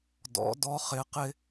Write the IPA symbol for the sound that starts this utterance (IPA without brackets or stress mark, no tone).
d